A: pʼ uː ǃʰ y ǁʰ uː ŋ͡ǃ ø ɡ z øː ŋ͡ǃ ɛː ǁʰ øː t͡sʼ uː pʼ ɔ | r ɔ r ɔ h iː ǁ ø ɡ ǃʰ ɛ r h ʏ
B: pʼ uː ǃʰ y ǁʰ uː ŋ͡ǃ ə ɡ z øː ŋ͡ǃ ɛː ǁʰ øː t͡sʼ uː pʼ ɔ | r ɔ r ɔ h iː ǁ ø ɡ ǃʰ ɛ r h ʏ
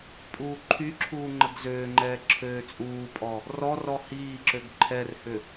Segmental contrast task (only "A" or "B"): B